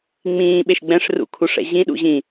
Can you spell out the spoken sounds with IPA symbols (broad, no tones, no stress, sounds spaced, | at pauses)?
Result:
ŋ͡m ĩː ɓ e ʃ ɡ͡b ɛ̃ ʂ r ṵ kʰ u ʂ ɛ̰ ʑ ĩ ɗ ṵ ʑ ĩ